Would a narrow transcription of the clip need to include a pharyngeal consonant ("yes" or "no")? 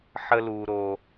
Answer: yes